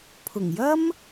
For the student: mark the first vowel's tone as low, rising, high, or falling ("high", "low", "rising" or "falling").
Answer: low